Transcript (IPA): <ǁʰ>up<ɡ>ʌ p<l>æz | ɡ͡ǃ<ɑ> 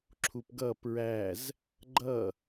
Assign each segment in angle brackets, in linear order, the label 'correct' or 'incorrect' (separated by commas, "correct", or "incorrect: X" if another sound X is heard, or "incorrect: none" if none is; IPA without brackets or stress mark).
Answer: correct, correct, incorrect: ɹ, incorrect: ʌ